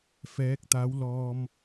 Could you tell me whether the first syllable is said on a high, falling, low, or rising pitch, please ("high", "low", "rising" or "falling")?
rising